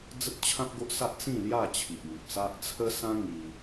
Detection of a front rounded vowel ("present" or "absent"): absent